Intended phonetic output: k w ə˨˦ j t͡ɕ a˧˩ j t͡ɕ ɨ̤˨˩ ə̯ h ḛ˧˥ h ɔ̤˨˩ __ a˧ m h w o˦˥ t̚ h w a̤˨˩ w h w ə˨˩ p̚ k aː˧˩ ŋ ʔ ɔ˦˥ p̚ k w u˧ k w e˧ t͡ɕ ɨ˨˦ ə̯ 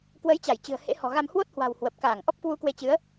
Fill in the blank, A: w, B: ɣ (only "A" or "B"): B